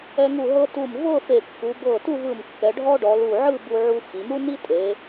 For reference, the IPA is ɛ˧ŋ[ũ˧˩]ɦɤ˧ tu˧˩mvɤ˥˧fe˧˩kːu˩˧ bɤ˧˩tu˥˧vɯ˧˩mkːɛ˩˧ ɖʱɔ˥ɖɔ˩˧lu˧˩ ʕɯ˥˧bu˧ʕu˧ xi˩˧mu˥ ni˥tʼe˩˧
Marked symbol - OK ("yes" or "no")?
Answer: no